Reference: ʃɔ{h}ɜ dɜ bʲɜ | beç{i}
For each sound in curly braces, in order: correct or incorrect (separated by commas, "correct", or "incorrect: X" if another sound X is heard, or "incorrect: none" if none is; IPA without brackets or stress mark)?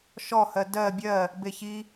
correct, correct